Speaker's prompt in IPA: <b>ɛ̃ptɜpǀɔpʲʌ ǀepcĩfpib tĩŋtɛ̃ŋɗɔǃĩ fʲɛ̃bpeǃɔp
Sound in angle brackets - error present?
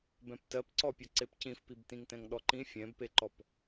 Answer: no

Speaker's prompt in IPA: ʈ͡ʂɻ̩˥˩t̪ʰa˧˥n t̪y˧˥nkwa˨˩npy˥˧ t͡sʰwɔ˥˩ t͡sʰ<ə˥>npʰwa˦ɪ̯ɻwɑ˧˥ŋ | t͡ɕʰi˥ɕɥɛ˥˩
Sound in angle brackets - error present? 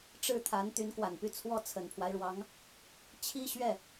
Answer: yes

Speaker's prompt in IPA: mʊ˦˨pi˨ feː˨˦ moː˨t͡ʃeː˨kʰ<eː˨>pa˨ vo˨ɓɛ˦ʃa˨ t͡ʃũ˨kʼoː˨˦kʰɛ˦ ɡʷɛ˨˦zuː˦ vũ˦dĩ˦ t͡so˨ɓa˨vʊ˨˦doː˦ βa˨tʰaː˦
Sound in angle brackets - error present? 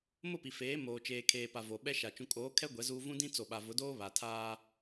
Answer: no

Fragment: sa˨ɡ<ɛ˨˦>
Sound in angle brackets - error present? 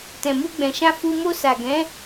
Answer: yes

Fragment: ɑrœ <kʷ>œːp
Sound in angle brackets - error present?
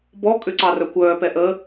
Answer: no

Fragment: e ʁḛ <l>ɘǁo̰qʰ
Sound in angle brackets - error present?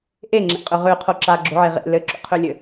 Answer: no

